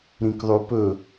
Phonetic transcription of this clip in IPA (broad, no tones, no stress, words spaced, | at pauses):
ɾĩkðˤʉpɵ